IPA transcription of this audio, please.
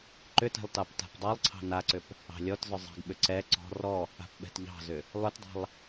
ǃ ʏ t ɛ̤ lˠ t ɑ p t a̤ p dˤ ɑ lˠ ǀʰ ɑ̤ n a ǀ ʏ p | ɑ̤ lʲ ɔ t z ʏ zˤ ɛ̤ ɡ ɓ ʏ ǀ ɛ ǀ ɔ̤ r ɔ | a̤ p ɓ ɛ̤ t ʎ ɑ̤ z ʏ | lˠ ʏ t dˤ a̤ lˠ

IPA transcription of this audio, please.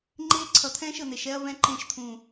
ŋ͡ǃ eː˦ ǀʰ ʌ˨ t̪ʰ ɛ̃ː˦ ʃ ə˨ n̪ e˨ ʃ ɛ˦ ɐ̯ v ɛ̃˦ ǃ ẽ˦˨ ʃ t̪ʰ ũ˨

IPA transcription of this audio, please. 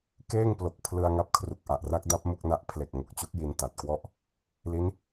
k eː˥˩ ŋ p l o˨˩ k̚ pʰ l ɯ˧ a̯ ŋ a˦˥ p̚ kʰ r u˨˩ k̚ ʔ a˨˩ ʔ r a˦˥ k̚ d a˦˥ p̚ m u˥˩ k̚ n a˦˥ ʔ pʰ l e˨˩ k̚ ŋ o˨˩ k̚ t͡ɕ u˦˥ k̚ j i˧ n t a˨˩ t̚ k w ɔ˥˩ ʔ | l i˦˥ n

